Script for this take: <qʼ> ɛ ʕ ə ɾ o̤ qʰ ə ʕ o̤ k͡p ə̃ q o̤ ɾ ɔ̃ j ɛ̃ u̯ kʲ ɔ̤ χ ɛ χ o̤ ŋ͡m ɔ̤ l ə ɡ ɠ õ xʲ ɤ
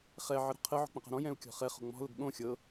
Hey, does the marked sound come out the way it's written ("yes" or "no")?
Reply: no